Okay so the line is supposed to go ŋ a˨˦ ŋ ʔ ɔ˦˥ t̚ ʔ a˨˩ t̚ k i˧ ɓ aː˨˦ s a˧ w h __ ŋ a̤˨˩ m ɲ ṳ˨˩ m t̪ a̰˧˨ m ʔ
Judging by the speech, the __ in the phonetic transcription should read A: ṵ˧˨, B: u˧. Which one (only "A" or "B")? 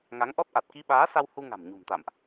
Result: B